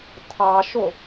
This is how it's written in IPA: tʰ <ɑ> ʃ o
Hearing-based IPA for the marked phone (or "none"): ɑ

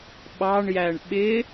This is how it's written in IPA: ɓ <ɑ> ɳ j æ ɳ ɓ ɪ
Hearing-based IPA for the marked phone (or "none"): ɑ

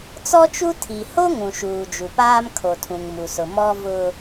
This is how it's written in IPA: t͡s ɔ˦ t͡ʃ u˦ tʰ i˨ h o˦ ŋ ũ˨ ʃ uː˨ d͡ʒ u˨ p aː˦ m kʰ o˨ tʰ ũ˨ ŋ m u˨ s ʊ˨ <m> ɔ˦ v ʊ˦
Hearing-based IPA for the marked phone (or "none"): m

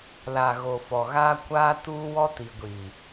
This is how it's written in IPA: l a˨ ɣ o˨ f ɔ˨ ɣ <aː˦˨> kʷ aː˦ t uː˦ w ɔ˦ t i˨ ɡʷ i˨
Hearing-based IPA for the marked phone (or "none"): aː˦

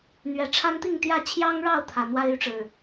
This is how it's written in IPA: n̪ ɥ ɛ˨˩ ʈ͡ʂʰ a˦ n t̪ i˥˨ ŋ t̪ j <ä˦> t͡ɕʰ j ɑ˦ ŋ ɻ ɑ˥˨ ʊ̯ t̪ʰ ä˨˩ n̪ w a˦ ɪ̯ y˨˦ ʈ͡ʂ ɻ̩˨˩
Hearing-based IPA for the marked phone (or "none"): ä˥˨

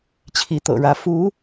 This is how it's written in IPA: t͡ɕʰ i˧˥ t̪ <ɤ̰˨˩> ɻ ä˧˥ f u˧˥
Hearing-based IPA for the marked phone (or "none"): ɤ̰˨˩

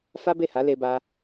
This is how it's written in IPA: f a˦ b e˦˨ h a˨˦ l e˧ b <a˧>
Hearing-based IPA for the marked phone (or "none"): a˦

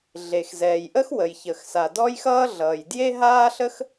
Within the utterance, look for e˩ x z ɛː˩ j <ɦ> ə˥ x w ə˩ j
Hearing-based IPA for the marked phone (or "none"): ʔ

